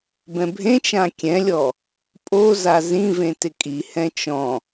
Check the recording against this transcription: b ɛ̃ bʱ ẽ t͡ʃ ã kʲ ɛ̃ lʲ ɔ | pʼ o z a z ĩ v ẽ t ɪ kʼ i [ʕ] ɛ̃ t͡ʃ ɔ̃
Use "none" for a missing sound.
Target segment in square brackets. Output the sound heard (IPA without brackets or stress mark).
h